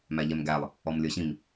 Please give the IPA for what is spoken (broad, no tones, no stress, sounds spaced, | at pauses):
m æ ʎ ɛ m ɡ æ lˠ | ɔ m lʲ ə˞ ɕ ĩ m